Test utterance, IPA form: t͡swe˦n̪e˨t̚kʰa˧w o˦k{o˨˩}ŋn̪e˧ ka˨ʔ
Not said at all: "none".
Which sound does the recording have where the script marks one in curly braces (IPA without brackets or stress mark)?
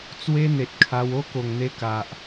o˨˩